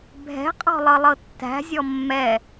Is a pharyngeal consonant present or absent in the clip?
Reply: absent